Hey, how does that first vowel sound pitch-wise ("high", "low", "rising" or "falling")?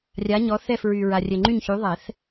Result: rising